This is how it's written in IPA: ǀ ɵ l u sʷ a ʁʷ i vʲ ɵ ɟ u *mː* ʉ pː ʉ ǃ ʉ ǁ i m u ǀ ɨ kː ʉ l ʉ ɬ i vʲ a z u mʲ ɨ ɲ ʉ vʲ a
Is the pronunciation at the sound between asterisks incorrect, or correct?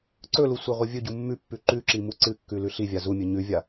correct